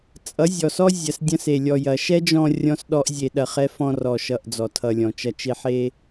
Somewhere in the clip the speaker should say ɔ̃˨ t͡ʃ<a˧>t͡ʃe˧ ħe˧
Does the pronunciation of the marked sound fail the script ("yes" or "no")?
yes